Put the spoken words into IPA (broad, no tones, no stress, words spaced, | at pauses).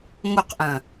ŋoqʔɐ̃